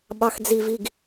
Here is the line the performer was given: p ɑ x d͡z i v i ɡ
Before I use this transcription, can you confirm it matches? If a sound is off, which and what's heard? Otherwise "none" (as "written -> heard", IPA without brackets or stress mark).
p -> ɓ